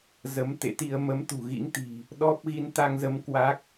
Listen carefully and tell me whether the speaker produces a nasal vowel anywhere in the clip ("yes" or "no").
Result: no